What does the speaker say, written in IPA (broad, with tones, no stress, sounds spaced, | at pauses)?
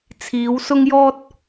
t͡sʰ iː˨˧ w s ʊ˥ ŋ j ɔː˥ t̚